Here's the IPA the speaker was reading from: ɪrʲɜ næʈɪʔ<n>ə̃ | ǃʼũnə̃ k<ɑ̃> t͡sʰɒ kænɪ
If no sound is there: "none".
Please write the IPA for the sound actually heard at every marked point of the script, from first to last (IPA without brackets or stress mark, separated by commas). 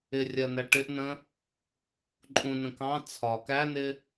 n, ɑ̃